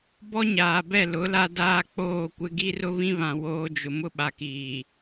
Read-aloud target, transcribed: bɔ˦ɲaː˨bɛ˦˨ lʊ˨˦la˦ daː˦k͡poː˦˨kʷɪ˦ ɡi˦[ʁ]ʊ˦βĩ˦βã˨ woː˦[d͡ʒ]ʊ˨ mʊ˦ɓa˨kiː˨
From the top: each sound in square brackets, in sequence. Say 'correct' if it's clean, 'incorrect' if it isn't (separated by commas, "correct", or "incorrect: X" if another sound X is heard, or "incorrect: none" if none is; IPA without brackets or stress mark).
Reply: incorrect: r, correct